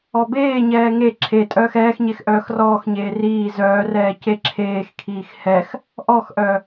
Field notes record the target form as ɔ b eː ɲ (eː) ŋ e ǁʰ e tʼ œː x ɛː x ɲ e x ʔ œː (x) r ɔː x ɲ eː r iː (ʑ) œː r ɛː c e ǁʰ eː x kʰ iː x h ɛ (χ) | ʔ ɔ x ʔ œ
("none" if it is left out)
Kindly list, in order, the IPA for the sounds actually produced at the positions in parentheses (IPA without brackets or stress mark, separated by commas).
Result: ɛː, x, z, x